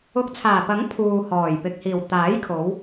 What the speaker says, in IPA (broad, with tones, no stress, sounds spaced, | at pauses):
ʊ˨˥ k̚ t͡sʰ aː˨˩ p ɐ˨˥ ŋ pʰ uː˨ h ɔː˨˩ j p ɪ˨ k̚ h iː˨˩ w t̪ aː˨˥ j kʰ o˨˧ w